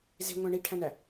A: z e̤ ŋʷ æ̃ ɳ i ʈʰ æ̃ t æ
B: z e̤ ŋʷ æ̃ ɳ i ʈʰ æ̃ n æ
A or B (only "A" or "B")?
B